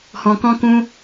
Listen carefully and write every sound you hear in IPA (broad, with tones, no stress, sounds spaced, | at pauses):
h ɔ̃˧ k ɔ̃˦ k ũ˦